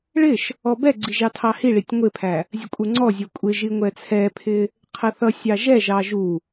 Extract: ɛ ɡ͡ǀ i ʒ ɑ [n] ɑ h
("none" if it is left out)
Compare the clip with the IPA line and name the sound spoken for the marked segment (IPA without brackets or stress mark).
tʰ